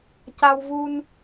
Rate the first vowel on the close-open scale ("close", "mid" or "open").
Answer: open